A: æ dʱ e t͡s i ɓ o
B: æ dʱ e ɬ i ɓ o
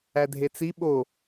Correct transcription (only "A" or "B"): A